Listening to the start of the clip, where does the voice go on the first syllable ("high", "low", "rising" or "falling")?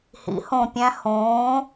rising